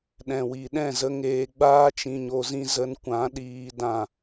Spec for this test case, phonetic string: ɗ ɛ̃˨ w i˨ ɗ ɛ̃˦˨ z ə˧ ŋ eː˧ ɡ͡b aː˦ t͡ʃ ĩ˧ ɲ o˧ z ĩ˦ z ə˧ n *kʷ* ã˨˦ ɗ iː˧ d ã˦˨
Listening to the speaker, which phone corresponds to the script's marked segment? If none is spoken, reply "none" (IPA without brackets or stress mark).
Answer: kʷ